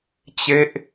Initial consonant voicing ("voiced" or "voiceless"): voiceless